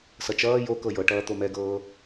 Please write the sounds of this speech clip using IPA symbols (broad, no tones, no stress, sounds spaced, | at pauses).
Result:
s ʌ t͡ʃ ʌː j o k ɤ j ɤ ʈ ʌː t̪ o m ɛ ɡ ɤː